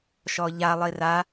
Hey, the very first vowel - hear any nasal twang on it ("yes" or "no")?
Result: no